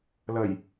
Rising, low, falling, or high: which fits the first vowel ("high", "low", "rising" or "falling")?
low